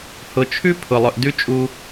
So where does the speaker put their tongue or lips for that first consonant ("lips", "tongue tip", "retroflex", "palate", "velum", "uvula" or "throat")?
throat